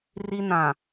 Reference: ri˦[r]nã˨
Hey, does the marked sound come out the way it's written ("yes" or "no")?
no